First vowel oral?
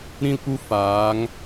no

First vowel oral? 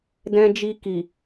no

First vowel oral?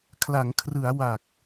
yes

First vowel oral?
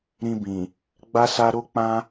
no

